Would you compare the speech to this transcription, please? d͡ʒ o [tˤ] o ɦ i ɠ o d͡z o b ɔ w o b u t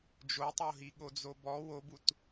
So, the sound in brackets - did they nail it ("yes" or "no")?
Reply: yes